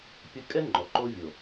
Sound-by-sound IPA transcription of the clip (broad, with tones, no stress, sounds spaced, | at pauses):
pʲ ə˦ kʼ ɛ˦ ŋ͡ǃ ɔ˨ ǃ o˦ vʲ o˨